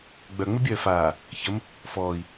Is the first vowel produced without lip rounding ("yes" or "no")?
no